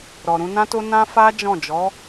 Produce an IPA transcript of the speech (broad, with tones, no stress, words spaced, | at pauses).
ɾɔ˨ɾũ˧nã˦to˦ nã˦fa˦ d͡ʒɔ̃˦˨d͡ʒɔ˨˦